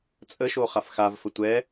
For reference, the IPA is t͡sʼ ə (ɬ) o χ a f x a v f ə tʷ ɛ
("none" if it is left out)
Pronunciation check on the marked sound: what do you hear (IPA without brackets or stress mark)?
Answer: ʃ